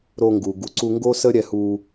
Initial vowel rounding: rounded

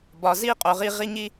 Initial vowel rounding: rounded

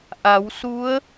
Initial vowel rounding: unrounded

